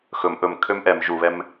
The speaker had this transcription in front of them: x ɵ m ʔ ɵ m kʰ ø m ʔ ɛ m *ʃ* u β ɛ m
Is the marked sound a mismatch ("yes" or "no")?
yes